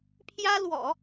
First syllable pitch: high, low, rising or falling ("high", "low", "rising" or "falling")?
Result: high